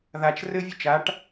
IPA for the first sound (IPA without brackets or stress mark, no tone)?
ð